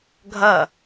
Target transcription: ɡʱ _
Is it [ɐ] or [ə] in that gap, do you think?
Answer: ɐ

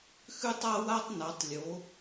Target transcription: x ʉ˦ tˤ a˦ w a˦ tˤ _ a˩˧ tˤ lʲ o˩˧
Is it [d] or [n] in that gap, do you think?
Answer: n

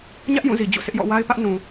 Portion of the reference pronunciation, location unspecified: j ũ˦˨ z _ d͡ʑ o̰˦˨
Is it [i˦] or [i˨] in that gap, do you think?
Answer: i˨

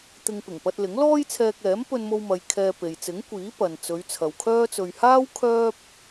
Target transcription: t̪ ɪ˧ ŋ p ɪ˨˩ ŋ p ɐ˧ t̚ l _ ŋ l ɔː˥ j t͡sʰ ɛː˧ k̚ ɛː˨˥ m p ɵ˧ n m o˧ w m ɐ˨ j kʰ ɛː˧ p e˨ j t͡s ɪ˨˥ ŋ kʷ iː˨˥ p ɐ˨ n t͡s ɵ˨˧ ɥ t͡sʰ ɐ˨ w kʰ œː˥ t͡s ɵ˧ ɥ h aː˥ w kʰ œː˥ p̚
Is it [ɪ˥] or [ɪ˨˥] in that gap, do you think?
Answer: ɪ˨˥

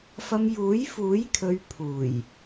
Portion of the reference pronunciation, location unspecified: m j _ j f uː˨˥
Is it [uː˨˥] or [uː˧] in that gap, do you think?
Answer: uː˨˥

